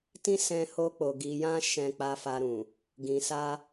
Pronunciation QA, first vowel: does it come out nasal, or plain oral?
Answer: nasal